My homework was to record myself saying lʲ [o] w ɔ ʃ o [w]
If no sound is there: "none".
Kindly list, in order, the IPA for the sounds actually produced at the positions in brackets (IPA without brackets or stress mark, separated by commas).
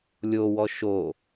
o, none